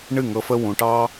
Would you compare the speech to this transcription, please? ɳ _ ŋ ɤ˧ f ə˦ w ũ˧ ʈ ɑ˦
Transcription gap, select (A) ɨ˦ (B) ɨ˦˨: B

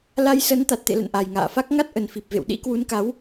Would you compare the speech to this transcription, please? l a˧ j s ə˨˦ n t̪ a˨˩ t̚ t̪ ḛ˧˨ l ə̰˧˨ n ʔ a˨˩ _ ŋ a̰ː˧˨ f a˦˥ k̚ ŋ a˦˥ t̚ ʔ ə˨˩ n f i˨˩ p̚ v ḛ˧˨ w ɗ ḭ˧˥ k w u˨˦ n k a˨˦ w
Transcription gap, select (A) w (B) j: B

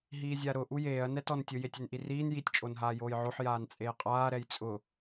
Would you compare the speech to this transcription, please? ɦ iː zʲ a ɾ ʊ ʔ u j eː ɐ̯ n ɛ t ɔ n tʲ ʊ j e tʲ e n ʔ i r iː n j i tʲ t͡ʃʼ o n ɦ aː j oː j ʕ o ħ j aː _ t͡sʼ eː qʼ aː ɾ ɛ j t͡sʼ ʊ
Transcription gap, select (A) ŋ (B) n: B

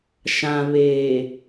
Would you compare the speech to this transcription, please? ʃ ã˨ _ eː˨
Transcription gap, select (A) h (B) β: B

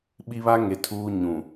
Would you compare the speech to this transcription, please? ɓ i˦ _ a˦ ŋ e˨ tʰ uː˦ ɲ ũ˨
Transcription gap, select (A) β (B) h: A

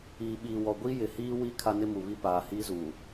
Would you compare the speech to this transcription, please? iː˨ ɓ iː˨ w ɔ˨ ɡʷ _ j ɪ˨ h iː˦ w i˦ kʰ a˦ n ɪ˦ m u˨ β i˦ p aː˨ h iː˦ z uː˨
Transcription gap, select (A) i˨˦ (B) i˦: B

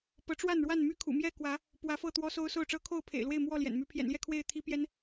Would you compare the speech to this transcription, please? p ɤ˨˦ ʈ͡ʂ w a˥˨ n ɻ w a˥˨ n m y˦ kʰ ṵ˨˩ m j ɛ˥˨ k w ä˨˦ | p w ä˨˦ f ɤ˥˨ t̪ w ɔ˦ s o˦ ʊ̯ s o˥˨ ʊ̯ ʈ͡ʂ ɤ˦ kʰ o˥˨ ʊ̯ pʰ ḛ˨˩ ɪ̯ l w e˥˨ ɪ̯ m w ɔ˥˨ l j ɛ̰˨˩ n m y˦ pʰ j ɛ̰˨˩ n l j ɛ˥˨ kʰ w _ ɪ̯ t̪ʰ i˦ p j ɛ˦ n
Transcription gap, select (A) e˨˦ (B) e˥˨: B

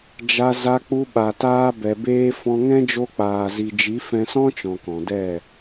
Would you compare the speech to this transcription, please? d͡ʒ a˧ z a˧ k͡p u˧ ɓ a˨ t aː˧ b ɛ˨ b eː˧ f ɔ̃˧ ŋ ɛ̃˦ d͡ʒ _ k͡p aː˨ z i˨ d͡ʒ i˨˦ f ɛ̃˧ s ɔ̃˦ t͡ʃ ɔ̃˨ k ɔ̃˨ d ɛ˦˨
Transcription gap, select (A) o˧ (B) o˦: A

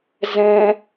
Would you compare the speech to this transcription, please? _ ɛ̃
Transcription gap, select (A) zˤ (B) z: B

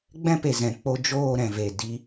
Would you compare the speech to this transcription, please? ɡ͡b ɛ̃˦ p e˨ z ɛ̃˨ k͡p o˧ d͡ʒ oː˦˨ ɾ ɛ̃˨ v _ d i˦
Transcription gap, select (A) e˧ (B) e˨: B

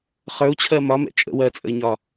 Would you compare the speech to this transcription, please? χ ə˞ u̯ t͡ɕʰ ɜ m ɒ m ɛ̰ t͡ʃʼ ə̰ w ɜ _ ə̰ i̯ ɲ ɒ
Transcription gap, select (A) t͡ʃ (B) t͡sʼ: B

